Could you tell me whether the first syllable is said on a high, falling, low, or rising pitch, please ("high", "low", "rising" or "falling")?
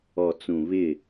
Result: low